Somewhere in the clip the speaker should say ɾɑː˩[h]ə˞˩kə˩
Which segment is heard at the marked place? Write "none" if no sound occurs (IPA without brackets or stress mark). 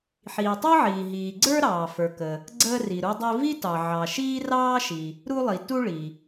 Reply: f